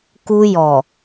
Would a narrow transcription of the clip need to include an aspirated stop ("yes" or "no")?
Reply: no